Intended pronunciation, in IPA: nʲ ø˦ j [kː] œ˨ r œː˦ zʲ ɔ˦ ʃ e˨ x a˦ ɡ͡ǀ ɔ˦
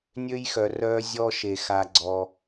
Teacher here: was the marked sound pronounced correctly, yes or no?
no